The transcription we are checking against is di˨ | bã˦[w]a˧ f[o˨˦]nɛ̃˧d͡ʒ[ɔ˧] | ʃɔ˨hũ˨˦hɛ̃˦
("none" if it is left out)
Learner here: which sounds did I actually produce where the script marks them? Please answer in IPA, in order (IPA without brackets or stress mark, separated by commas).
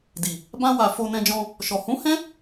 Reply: w, o˧, ɔ̃˧